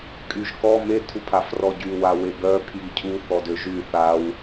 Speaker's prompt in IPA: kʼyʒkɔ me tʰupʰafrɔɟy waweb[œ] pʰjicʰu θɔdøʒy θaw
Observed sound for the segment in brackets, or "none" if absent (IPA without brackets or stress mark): œ